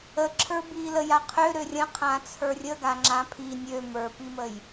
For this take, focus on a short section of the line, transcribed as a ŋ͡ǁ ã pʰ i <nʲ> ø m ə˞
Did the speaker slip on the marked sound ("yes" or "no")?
no